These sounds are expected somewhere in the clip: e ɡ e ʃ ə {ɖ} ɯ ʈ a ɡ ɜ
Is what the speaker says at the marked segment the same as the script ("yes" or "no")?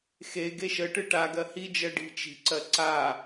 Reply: no